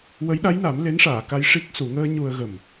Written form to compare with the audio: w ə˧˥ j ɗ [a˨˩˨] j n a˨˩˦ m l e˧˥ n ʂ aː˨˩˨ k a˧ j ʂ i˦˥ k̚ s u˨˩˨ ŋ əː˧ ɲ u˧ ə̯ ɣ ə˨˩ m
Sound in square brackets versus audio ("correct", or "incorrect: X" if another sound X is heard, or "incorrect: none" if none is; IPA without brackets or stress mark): incorrect: a˧˥